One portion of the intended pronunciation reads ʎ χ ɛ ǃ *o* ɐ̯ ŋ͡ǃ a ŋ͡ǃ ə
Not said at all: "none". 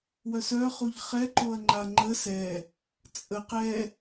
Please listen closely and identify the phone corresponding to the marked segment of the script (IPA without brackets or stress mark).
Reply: o